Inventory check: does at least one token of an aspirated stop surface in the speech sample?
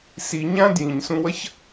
no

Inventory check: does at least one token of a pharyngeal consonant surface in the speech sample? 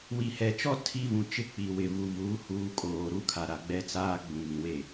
no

